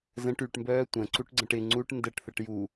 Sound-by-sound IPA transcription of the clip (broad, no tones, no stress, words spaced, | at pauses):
zə̃ʈ yʈmbœː tʷə̃ ǀuʈɡ͡ǀə̃ʈɪ ŋ͡ǀuʈ ndəʈθəʈ ju